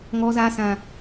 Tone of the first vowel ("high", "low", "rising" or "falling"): low